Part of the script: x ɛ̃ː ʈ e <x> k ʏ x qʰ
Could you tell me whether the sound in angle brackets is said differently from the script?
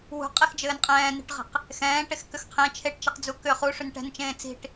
no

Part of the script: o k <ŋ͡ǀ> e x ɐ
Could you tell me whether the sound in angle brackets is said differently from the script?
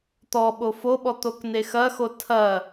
yes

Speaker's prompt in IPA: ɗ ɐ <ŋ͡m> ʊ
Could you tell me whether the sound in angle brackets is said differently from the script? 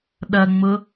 no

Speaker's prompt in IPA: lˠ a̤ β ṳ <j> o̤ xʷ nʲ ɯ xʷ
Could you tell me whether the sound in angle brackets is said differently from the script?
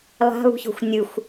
yes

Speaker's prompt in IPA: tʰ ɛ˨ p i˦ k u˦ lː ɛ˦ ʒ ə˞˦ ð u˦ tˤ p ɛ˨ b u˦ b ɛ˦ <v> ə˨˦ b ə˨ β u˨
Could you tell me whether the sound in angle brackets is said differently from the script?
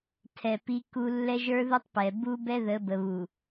yes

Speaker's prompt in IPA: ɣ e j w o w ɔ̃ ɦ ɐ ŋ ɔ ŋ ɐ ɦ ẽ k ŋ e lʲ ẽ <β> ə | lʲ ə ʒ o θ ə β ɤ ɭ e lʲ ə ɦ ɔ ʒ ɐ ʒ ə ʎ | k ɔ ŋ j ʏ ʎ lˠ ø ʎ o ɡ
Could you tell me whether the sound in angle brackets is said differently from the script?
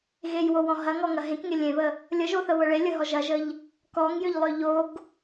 no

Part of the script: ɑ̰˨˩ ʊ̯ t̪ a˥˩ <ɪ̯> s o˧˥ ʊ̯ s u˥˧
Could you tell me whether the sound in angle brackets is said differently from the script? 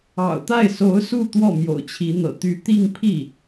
no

